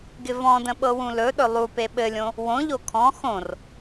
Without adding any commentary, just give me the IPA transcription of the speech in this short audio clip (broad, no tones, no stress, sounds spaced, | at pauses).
ɡ ɪ v ɔ̃ d ə̃ ɓ ɤ w ũ l ɵ ɗ ɵ lˠ u p e ɓ ɘ lʲ õ | w õ ʎ o kʰ ɔ̃ x õ r